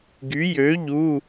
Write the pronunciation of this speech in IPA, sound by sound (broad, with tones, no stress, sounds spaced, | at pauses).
ɡ y˨˥ j ø˨˥ ʎ u˧˥˧